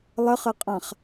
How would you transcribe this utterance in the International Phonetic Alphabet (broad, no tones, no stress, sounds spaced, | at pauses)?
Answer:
lˠ ɘ χ ɘ qʼ ã χ